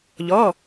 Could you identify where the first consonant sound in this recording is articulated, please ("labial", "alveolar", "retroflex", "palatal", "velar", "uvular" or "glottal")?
palatal